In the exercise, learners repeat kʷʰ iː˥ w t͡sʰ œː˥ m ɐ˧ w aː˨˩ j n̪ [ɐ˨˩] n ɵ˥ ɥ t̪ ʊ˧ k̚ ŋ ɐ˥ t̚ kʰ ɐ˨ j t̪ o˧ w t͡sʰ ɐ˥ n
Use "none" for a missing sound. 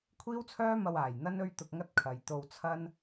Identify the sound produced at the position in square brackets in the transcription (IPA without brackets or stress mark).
ɐ˥